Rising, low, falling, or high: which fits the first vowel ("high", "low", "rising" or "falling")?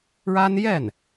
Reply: high